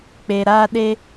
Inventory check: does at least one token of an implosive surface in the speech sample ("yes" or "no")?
yes